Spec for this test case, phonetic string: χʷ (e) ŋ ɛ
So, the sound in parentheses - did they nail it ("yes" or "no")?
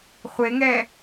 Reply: yes